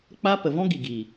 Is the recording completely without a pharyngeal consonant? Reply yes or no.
yes